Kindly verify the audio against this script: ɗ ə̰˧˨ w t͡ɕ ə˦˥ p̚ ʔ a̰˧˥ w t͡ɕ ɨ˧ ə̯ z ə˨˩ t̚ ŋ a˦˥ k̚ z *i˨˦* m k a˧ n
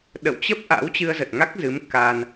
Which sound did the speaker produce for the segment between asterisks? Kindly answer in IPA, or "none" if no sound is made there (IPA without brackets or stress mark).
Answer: ɨ˨˦